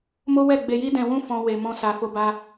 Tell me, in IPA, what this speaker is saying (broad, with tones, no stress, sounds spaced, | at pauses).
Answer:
m o˦ w ɛ˦˨ ɡ͡b e˧ j i˦ d ɛ̃˧ w ũ˦ f ɔ̃˧ w e˨ m ɔ̃˧ s a˨ f o˧ b a˧